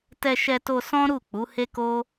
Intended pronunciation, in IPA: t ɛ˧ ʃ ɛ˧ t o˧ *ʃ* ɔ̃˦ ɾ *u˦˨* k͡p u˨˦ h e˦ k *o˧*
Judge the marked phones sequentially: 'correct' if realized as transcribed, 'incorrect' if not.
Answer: incorrect: s, correct, incorrect: o˦

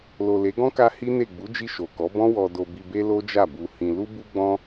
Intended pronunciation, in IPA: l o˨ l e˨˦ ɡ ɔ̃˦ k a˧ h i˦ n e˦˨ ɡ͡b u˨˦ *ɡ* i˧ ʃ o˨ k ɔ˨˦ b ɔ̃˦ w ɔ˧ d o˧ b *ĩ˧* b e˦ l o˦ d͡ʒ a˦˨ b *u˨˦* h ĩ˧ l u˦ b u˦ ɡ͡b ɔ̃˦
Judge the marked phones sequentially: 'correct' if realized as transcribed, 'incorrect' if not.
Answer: incorrect: d͡ʒ, incorrect: i˧, incorrect: u˧

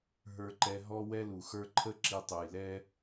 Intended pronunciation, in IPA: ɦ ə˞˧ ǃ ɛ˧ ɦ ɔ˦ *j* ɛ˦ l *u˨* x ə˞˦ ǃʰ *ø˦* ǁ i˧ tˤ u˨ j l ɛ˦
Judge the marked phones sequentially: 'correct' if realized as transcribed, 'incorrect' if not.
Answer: incorrect: w, correct, incorrect: ə˦

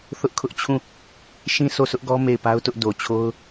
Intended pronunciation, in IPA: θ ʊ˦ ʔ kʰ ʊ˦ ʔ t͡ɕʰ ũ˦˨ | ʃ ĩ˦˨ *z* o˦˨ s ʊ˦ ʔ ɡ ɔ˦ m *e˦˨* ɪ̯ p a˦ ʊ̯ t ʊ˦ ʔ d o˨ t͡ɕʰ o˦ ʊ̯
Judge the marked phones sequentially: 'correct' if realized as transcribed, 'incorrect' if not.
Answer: incorrect: s, correct

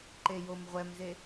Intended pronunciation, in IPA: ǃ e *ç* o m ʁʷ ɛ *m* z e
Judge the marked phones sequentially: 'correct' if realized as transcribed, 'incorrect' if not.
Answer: incorrect: j, correct

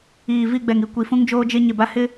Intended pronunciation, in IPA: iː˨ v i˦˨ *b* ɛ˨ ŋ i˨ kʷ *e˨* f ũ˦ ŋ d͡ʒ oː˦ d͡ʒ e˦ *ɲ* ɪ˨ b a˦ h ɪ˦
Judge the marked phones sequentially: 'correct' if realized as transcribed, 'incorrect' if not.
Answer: incorrect: ɡ͡b, incorrect: i˨, correct

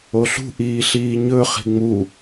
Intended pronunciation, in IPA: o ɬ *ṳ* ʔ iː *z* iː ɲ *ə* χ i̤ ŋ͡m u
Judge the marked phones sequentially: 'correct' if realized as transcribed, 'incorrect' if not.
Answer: correct, incorrect: ɬ, incorrect: ɵ

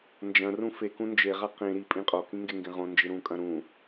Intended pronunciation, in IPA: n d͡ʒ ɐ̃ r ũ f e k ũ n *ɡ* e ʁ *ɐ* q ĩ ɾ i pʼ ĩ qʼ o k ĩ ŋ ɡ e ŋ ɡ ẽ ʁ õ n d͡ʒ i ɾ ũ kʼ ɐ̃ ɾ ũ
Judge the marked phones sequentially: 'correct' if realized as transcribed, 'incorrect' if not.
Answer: incorrect: d͡ʒ, incorrect: a

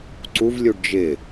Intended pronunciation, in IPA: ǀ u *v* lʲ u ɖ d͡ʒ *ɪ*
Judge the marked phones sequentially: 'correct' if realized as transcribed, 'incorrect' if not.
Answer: correct, correct

